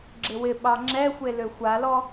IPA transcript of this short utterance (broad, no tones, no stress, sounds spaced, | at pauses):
ɡ͡ǁ ɪ w ɪ ɓ ɑ ŋ͡ǁ ɛ xʷ e l ø xʷ a l ɔ